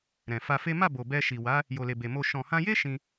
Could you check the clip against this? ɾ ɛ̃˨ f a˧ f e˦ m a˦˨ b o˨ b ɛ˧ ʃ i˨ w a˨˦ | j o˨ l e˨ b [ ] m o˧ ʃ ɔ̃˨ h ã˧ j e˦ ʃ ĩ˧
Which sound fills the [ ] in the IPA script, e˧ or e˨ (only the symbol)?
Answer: e˨